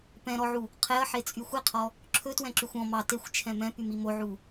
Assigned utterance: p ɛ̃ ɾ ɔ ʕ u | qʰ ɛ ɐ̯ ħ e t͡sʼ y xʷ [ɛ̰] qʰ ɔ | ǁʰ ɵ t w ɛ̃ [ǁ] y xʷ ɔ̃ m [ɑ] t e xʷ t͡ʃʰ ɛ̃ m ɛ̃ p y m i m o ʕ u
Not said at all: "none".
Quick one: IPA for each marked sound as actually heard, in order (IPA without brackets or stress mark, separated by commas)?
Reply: ɛ, ǁ, ɑ